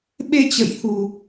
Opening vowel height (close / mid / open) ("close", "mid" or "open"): mid